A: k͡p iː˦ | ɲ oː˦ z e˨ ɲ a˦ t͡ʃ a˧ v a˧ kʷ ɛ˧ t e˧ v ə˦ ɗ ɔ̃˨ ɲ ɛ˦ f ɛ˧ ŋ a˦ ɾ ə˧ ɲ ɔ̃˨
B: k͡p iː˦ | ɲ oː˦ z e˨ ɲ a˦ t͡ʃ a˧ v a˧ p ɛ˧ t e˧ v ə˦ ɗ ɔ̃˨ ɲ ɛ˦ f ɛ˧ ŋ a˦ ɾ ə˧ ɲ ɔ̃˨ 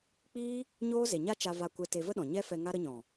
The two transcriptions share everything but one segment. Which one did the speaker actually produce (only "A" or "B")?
A